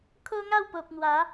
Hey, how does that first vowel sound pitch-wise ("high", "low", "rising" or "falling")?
high